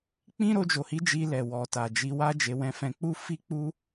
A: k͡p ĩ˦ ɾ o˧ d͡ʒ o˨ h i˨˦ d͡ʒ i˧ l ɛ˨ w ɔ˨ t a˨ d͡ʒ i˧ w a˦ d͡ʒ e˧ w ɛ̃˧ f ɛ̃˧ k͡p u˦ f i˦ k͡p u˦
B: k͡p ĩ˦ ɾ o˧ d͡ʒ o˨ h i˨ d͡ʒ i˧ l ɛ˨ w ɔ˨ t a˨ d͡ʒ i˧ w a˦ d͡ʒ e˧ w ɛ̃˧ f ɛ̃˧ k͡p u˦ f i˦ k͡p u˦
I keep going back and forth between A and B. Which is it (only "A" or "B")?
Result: A